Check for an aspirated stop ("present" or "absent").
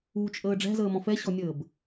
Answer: absent